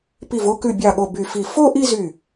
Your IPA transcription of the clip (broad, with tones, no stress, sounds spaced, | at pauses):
p i˧˩ v o˥˧ k ʉ˧˩ bʲ ɑ˧˩ ɠ o˧˩ b y˧˩ f i˧˩ f o˥˧ ʔ i˥˧ z y˧˩